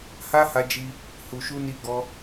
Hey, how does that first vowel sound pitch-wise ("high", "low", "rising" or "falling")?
high